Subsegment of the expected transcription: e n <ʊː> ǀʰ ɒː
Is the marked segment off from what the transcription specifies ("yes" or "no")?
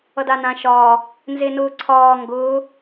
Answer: no